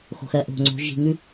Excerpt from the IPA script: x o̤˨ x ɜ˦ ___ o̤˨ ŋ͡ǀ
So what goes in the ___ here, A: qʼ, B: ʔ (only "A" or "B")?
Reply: B